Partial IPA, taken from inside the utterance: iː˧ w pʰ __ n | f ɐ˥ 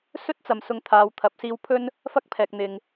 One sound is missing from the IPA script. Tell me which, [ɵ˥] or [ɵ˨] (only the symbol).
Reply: ɵ˥